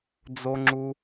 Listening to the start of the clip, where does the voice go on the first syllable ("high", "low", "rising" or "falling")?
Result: low